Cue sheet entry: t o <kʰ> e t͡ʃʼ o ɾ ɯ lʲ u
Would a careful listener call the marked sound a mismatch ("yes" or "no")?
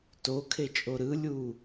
no